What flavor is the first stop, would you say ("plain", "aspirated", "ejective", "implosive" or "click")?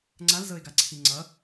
click